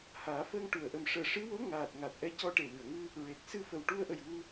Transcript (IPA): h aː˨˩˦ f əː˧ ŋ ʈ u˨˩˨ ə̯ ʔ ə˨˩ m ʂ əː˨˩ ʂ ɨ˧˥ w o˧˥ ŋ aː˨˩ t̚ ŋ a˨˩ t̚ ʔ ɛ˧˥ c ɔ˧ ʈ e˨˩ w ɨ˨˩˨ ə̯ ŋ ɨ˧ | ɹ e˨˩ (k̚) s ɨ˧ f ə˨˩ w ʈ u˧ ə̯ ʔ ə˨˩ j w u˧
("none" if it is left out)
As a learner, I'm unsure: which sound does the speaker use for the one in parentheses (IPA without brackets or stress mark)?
k̚